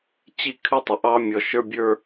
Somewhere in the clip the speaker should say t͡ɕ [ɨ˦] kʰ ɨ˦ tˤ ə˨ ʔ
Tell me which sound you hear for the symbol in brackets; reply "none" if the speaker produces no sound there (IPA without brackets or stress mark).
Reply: i˦